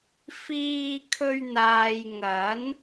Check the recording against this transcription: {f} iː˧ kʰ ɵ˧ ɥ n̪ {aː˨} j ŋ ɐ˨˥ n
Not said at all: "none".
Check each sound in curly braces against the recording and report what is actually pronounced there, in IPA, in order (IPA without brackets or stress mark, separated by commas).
f, aː˨